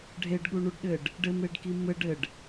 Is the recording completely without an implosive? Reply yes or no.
no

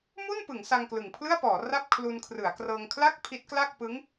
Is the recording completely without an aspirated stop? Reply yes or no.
no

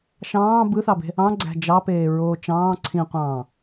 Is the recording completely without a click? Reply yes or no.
no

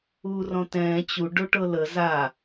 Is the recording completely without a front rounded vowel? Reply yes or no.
yes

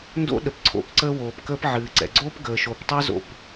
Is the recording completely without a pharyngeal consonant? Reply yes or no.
no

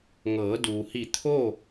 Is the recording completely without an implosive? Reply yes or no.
yes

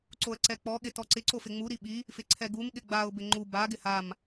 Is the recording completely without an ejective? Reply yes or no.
yes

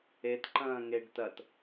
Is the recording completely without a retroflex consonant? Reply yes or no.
no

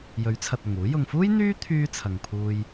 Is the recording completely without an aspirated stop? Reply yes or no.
no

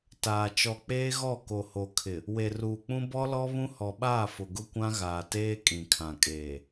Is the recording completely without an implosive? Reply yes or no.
no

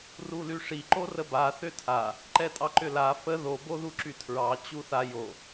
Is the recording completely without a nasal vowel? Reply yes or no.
yes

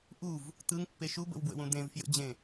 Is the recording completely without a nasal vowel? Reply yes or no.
no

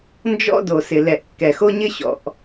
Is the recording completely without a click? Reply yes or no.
yes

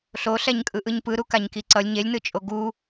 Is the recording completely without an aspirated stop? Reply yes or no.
yes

